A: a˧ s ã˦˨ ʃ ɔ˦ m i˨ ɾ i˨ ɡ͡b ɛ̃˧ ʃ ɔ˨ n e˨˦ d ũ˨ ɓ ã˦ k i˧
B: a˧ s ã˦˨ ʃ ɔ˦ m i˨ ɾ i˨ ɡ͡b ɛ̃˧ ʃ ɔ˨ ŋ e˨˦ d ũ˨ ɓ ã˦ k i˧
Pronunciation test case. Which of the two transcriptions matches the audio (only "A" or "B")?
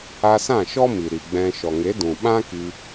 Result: B